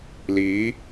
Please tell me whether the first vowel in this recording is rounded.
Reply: no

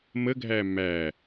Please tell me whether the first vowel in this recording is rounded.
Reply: no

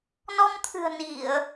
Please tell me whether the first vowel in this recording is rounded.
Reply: yes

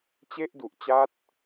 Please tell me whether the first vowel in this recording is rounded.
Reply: no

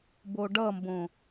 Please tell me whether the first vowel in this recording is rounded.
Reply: yes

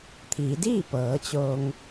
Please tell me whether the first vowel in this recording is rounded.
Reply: no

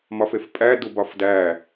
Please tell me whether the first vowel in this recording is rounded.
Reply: yes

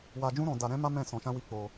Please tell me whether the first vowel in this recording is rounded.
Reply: no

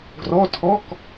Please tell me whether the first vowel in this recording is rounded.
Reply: yes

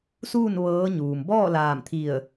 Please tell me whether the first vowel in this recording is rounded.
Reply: yes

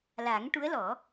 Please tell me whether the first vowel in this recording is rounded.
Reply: no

